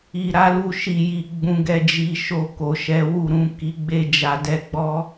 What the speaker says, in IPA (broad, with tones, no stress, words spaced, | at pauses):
i˧ɾa˦lu˦˨ ʃi˧ji˧ ɡ͡bũ˧ɡɛ˧d͡ʒi˧ʃo˧ ko˨ʃɛ˨˦wu˦˨ɾũ˨˦ ki˧ɡ͡be˦ d͡ʒa˧dɛ˧ɡ͡bɔ˦